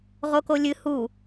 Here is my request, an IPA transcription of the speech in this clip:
ʁ o k o lʲ ɨ h u

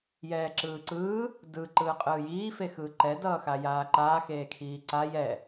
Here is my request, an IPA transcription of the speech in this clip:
j ɛː ǁ ɯː ǀ ɯː | d ɯ ǃ ɯː qʼ ɯː j iː f e x ɯː ǃ ɛ d ʌː x a j aː ǃ aː x eː kʰ iː ǀ a j ɛ

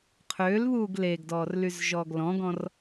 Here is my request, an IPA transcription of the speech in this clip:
qʰ øː l β uː ɡ l e ɡ d ɔː r l y z ʒ ɔː ɡ l ɔ̃ ɡ ɔ̃ r

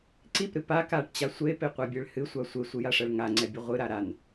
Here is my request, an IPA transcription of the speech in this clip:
ǀ i p ɾ ɨ p a k a ʈ t͡ɕ a sʷ e p e qʷ a bʲ e ɭ h ɨ sʷ a sʷ e sʷ ɨ j a ʂ ɛ ɭ ŋ a ŋ͡ǀ ɛ bʲ ɨ ʁʷ ɨ ɾ a ɾ a n

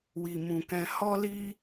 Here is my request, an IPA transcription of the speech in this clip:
w i˨ m ũ˨ k ɛ̃˧ h ɔ˦ l i˦

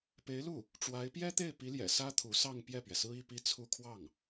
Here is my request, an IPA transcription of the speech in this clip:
p e˧˥ ɪ̯ l u˥˩ | ʈ͡ʂ w a˧˥ ɪ̯ p j ɛ˥ t̪ e˥˩ ɪ̯ p i˧˥ l j ɛ̰˨˩ s ä˥ t̪ʰ u˧˥ s ɑ˥˧ ŋ p j ɛ˥˩ p ɥ ɛ˩ s ɹ̩˥ i˥˧ p i˥˧ t͡sʰ u˥˧ kʰ w ɑ˥˩ ŋ

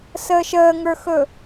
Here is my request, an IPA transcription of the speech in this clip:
s əː ʃ əː ŋ ə˞ x ɵ

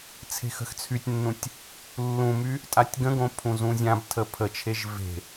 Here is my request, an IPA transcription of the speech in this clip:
t͡sʰ e̤ x ə̤ x t͡sʰ y tʲ nː ũ tʲ | lː ũ m y | tʼ a tʲ ɡ ə̃ ɡ õ pʰ ũ z ũ zʲ ã b tʰ ə pʰ ə t͡ʃʰ e ʒ v e̤

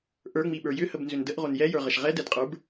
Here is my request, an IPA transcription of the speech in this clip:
ʔ ə˞ ŋ͡m i ɓ ə˞ j ʏ h ə b n z ʏ n d ə ʔ ʁ o n j ɛ j ə˞ ʁ ə ʃ ʁ ɛ d ɛ d qʼ ə˞ b

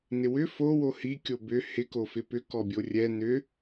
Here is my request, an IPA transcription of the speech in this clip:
n ɪ w ʏ f o w o h i kʲ o b ʏ h ɪ k o f ɪ p ʏ k ɔ bʲ o rʲ ɛ n ʏ

